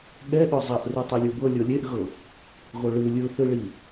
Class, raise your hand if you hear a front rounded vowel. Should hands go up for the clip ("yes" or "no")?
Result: no